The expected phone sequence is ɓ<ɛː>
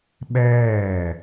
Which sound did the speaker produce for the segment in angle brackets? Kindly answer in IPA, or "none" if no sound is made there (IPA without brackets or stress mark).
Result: ɛː